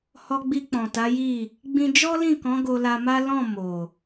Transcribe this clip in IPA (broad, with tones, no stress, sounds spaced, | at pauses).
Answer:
h ɔ˧ ɡ͡b i˧ k͡p ɔ̃˨ t a˨˦ j i˦˨ | ɡ͡b ĩ˦ d͡ʒ ɔ˦ l ĩ˦˨ k ɔ̃˨˦ ɡ o˧ l a˧ m a˦ l ɔ̃˦˨ m o˨